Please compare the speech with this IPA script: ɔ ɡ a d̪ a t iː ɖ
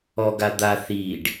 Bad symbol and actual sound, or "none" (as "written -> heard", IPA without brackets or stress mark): t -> θ